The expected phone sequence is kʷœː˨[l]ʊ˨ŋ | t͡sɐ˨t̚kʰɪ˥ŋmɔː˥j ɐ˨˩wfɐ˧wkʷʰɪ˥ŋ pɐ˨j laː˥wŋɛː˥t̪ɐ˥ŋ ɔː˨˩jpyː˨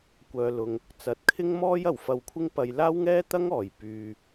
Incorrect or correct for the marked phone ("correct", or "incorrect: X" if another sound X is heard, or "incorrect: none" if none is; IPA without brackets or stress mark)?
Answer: correct